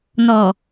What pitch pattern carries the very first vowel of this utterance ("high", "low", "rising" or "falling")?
low